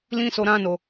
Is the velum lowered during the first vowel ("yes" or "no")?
yes